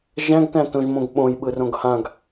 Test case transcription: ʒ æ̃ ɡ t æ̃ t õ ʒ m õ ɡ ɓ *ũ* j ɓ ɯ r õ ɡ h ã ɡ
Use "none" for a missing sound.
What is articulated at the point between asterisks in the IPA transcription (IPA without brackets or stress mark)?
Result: õ